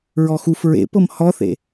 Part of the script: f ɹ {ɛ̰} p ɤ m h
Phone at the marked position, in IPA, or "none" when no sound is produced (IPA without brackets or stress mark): ḛ